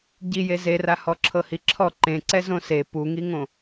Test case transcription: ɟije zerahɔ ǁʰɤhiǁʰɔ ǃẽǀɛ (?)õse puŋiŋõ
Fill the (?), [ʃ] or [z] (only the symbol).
z